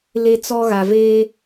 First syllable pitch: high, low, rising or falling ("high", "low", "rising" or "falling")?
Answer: high